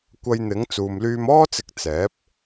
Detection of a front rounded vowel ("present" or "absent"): present